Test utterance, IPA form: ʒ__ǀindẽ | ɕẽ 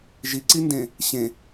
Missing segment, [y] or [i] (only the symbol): i